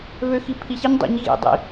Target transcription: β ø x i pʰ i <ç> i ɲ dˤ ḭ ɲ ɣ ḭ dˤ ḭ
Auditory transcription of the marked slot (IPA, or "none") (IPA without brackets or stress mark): ç